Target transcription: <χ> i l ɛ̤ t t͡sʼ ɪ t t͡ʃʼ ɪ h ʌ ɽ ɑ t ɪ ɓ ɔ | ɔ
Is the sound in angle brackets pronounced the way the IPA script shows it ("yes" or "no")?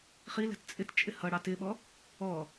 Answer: yes